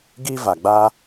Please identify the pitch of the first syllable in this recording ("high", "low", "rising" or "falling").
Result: high